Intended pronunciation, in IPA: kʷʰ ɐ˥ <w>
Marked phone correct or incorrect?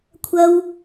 correct